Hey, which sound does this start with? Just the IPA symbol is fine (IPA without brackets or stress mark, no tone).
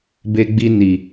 b